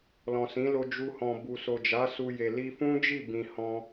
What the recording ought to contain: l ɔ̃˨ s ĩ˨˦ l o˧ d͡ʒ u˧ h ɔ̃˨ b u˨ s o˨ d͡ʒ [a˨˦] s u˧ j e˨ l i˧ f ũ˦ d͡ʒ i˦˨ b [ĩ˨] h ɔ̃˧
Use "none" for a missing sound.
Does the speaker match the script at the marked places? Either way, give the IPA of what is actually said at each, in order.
a˨˦, ĩ˨

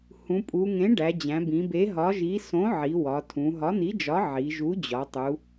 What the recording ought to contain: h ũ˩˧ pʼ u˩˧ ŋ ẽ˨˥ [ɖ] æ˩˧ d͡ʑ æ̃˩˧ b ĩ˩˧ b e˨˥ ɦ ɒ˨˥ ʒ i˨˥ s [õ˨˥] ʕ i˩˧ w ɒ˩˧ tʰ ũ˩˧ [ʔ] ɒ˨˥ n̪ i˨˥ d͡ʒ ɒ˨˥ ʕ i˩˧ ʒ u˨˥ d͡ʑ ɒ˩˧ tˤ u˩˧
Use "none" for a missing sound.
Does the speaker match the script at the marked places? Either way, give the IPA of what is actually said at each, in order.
ɖ, õ˨˥, ɦ

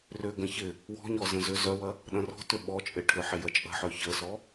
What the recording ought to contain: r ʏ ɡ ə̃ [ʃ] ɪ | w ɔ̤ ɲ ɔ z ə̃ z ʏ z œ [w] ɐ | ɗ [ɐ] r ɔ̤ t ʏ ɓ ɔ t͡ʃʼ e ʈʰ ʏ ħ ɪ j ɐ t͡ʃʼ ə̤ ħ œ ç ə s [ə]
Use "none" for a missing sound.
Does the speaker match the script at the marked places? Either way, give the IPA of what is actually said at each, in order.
ç, w, ɐ̃, ɔ

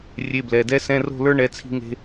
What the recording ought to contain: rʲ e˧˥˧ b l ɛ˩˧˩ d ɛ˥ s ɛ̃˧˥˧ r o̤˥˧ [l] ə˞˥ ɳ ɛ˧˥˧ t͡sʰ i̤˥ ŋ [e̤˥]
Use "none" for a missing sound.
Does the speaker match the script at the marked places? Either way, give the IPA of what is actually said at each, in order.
l, e̤˥

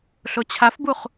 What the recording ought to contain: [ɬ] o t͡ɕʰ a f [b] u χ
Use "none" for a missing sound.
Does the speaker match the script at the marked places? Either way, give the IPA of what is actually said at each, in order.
ɬ, b

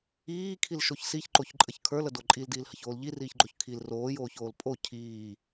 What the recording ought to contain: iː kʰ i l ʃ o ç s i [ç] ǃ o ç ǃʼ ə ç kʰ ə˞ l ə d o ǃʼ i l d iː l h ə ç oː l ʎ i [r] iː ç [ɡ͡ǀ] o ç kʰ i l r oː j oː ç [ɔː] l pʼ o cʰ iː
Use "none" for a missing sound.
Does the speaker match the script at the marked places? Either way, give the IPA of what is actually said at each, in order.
ç, r, ɡ͡ǃ, oː

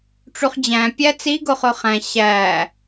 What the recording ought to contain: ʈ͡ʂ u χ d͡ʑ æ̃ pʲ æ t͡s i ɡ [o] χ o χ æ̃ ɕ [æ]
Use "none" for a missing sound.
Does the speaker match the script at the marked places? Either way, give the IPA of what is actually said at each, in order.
o, æ

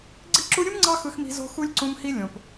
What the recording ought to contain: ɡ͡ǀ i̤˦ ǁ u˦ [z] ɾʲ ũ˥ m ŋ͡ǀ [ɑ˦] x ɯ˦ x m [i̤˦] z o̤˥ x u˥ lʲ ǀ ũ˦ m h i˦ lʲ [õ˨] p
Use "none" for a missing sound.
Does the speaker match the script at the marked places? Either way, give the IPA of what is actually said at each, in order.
none, ɑ˦, i̤˦, õ˨

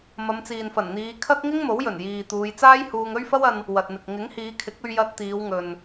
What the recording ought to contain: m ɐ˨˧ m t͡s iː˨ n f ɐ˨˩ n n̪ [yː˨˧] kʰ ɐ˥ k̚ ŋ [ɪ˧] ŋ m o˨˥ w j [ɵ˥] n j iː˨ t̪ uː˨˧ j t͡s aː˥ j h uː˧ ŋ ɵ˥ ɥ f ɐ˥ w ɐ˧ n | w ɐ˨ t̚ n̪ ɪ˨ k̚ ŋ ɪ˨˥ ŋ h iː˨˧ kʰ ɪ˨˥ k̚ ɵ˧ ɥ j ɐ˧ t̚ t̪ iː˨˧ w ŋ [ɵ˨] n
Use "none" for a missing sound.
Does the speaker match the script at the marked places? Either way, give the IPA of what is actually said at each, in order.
iː˨˧, ɪ˥, ɵ˨˩, ɵ˨

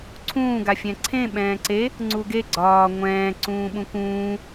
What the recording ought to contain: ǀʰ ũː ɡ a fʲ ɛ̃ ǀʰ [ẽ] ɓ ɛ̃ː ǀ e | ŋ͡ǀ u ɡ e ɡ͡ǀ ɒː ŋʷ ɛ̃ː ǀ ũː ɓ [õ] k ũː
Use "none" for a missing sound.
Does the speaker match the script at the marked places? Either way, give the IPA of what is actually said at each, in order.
ẽ, ũ

